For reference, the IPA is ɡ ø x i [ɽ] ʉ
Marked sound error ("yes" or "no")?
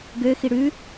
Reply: no